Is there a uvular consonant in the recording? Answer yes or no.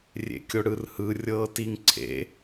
no